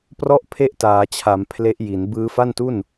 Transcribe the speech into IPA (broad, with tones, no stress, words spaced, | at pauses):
prɔ˥˩ʔ pʰe˥˩ʔtaː˩˦t͡ɕʰa˩˦m pʰle˦˥ʔji˩˦n bɯː˧fa˥˩ntu˥˩n